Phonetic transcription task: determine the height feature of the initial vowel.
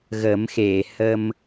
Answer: mid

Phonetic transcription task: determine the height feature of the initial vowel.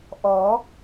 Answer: mid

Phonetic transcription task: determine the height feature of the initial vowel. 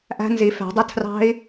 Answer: low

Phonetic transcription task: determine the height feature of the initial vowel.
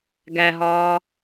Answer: low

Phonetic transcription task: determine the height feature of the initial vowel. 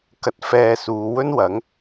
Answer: low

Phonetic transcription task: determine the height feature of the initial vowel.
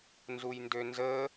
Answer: high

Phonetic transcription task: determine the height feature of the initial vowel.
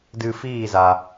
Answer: high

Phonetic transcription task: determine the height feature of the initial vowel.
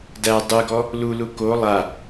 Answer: low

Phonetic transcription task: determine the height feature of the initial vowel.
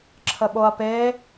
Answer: mid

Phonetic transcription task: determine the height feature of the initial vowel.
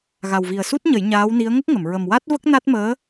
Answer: low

